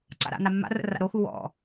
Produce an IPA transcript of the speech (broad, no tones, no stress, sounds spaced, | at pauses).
ǀ a̰ ɾ a̰ n a mː a̰ r ə̰ r a̰ ɾ o x u w ɔ̰